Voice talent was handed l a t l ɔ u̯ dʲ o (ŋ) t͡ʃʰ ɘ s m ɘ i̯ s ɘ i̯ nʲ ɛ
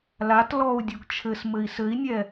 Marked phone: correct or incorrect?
incorrect